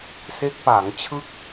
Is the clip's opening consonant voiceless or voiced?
voiceless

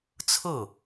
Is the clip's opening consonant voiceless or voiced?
voiceless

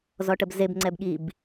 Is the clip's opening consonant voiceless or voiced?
voiced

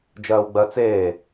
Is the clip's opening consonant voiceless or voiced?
voiced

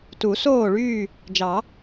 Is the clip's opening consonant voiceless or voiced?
voiceless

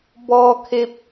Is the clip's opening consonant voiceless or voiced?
voiced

